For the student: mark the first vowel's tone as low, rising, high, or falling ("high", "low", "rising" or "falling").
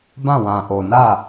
falling